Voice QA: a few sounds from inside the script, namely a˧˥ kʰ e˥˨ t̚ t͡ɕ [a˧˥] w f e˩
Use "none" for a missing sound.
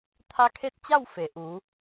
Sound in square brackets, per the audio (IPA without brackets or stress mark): a˥˨